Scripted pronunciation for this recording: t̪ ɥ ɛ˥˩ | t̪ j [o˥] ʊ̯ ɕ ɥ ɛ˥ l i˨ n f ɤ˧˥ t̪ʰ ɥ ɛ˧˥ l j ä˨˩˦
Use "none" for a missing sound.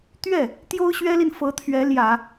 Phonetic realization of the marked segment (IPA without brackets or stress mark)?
o˥